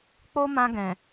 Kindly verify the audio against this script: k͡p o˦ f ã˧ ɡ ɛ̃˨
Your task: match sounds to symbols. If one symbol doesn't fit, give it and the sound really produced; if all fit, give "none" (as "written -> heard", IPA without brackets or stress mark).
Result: f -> m